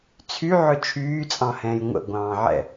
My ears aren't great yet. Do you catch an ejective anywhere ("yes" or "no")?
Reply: yes